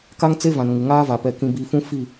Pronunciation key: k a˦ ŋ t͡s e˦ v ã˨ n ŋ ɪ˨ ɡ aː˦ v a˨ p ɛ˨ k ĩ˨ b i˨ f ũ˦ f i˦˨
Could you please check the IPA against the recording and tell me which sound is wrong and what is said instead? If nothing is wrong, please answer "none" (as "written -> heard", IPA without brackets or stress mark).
ɡ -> ŋ